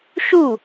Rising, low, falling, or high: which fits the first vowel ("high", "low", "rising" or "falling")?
falling